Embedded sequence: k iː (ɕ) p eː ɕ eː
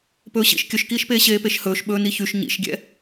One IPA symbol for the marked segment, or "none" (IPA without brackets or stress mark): ʃ